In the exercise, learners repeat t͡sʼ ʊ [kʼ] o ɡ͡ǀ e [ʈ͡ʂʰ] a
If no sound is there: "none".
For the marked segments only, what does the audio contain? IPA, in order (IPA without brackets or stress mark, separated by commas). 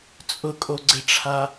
kʼ, ʈ͡ʂʰ